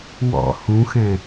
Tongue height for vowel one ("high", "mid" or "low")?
mid